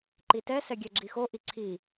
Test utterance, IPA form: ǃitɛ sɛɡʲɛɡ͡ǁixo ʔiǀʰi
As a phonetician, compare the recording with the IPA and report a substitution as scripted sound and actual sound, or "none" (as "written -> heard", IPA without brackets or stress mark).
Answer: none